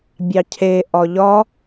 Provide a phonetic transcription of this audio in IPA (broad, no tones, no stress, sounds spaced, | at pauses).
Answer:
bʲ ɑ cʰ e ʔ ɒ ʎ ɒ